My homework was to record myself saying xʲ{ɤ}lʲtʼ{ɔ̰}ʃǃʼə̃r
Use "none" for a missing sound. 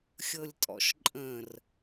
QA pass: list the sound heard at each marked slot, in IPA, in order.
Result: ɤ, ɔ̰

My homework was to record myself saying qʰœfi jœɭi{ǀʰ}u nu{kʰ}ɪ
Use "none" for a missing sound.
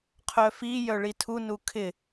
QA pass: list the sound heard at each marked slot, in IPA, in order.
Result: tʰ, kʰ

